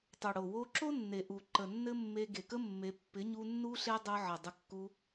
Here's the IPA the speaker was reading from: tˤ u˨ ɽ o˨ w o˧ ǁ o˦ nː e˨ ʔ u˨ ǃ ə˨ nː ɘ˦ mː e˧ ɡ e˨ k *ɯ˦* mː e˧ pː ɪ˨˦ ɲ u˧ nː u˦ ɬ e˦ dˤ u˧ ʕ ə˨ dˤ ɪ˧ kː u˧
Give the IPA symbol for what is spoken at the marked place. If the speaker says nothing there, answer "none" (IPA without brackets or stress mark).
ə˦